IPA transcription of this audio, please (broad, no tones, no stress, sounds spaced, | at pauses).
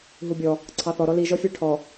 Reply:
ɦ u bʲ ɔ | ǀʰ ɑ θ ɔ ɾ ɔ l i ʒ ɔ fʲ ə˞ ʈʰ ɔ